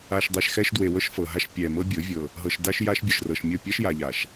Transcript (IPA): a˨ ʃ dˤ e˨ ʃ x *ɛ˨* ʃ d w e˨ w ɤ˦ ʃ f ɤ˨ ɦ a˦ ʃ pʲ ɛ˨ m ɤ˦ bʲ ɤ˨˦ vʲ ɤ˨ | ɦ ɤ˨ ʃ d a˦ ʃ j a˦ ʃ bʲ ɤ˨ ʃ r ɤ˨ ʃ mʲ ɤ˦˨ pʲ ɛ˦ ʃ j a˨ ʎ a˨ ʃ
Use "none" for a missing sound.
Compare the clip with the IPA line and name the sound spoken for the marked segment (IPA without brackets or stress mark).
ɛ˦